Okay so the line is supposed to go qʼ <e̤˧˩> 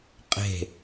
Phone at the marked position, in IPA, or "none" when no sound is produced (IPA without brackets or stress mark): e̤˧˩